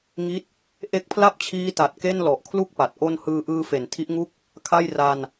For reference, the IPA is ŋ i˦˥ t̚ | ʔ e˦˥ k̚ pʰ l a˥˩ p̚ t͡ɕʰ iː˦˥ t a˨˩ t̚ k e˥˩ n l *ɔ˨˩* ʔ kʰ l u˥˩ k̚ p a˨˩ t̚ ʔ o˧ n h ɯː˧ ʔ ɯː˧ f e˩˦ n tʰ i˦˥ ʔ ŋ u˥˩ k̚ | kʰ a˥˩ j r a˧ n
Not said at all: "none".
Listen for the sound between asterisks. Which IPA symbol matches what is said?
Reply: ɔ˨˩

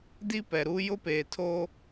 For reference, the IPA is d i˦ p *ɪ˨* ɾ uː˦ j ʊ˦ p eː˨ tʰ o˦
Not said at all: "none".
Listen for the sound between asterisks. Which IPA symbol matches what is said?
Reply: ɛ˨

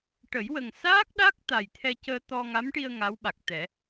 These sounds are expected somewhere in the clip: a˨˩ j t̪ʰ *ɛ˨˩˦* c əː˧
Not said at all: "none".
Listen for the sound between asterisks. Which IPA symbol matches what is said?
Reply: ɛ˧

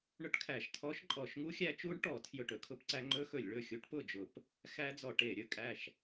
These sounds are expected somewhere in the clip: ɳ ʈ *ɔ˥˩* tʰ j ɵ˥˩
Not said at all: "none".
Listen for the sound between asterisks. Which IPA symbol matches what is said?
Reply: ɔ˧˩˧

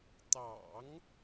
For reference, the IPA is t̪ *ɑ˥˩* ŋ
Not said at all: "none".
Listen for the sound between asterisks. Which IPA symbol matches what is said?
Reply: ɑ̰˨˩˦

